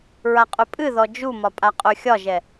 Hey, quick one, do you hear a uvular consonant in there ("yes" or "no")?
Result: yes